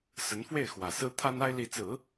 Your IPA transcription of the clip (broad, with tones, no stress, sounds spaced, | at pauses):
s ə˧˥ n f w e˥˩ ɪ̯ x w ä˨˩ s ɹ̩˥ t̪ʰ a˥ n a˥ ɪ̯ l i˧˥ t͡s ɹ̩˨˩˦